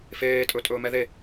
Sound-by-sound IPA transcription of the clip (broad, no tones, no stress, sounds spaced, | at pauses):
f eː tʼ ɵ tʼ ɵː m ɛ ð e